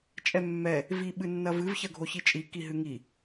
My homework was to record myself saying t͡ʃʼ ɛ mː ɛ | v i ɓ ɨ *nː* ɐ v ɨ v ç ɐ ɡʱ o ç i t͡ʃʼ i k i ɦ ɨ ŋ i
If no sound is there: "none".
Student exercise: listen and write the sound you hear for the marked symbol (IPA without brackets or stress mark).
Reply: nː